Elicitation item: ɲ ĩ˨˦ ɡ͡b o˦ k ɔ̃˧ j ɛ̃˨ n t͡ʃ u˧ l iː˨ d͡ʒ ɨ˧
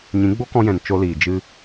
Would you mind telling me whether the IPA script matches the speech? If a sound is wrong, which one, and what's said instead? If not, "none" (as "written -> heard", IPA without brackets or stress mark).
u˧ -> o˧